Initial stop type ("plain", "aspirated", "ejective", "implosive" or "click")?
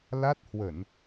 plain